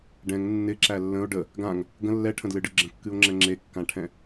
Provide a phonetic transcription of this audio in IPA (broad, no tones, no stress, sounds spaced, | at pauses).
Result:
ɖ ɛ̃ ŋ nː ɪ ǁ æ lː ə̃ o̯ ɖ ə | ɡ ã ŋ | ɡ ə̃ lː ɛ ʈʰ ə̃ d l ɨ ɖ ɨ ɡ͡ǁ ə̃ kː ɨ o̯ ŋ͡ǁ ɛ̃ ŋ͡ǁ e kː ã ʈʰ ɛ̃